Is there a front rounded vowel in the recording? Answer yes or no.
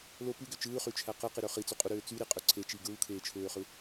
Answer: yes